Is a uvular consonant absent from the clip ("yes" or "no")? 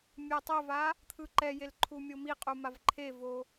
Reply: no